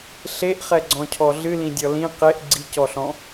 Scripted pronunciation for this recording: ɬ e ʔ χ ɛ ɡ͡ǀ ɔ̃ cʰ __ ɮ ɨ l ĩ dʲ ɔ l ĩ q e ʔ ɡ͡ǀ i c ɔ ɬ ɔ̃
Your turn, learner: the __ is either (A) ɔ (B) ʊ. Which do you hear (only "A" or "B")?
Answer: A